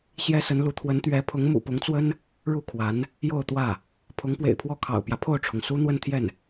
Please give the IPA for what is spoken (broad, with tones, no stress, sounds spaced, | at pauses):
ɕ j ɛ˥ s ə˧˥ n l u˧˥ t̪ʰ w ə˧˥ n t̪ ɥ ɛ˧˥ pʰ ʊ˧˥ ŋ m ṵ˨˩ p ʊ˧˥ ŋ t͡s w ə˥ n | ɻ u˥˩ kʰ w a˧˥ n | j o˥˧ ʊ̯ t̪ w ä˥˩ | pʰ ʊ˧˥ ŋ p w ḛ˨˩ ɪ̯ pʰ w ɔ˥˩ kʰ ɑ̰˨˩ ʊ̯ p j ä˦ pʰ o˥˩ ʊ̯ ʈ͡ʂʰ ʊ˩ ŋ s u˥ n̪ w ə˥˧ n t̪ʰ j ɛ˥˩ n